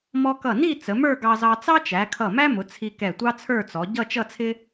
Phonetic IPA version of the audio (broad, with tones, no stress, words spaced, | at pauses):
mɔ˧ kʌ˧˩ni˥˧ t͡sə˩˧mə˞˥˧ɡɑ˧zɑ˧ t͡sɑ˥t͡ʃæ˩˧kʰʌ˧˩ mæ˥mʊ˩˧ t͡sʰi˧kɛ˧˩tʷɑ˥ t͡sʰə˞˥˧t͡sɔ˩˧ ɟʌ˥˧t͡ʃʌ˥˧t͡sʰɪ˥